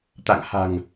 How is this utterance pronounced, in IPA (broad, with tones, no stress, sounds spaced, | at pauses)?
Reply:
t̪ a̰˧˨ ŋ h a̤˨˩ ŋ